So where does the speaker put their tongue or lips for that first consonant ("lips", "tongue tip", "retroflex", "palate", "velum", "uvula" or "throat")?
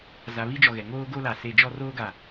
tongue tip